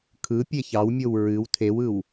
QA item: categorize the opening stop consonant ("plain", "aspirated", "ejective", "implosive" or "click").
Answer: aspirated